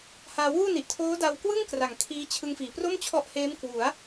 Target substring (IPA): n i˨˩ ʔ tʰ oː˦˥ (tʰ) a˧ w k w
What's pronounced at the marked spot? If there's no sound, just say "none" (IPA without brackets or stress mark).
d